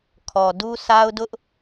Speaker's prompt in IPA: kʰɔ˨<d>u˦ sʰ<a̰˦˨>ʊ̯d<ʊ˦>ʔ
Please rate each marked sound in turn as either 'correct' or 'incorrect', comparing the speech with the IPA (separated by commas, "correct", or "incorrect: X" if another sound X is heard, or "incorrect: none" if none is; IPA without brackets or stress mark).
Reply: correct, incorrect: a˦, correct